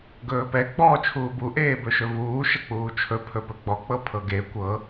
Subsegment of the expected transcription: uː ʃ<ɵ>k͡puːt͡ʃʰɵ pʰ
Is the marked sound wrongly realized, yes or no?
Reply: yes